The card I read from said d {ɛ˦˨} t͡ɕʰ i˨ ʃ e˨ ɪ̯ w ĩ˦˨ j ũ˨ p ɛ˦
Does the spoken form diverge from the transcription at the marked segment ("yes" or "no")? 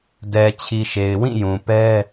yes